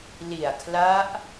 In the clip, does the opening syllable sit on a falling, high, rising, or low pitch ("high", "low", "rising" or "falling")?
low